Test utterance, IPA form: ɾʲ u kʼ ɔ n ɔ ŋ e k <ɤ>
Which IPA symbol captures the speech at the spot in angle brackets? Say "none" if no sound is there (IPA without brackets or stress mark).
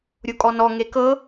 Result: ɤ